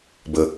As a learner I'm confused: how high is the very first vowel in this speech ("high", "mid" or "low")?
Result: mid